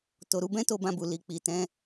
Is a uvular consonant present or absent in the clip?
absent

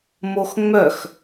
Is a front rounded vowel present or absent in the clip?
present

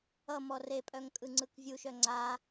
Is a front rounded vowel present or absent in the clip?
present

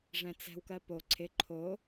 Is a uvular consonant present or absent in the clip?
absent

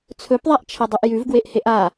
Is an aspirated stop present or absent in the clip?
present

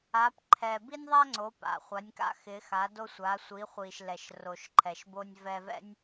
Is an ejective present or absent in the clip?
absent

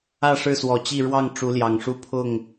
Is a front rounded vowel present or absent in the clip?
absent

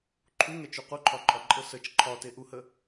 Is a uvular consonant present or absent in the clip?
present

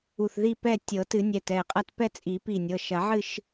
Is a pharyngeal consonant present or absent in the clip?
present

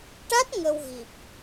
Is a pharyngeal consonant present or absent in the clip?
absent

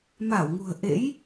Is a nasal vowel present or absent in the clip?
absent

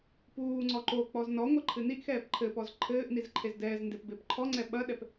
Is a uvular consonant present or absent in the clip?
absent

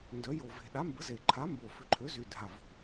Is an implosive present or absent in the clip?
present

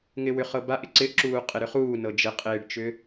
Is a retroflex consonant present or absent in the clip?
present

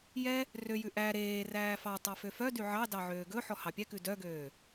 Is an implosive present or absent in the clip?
absent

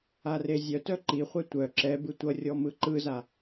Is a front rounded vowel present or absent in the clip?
present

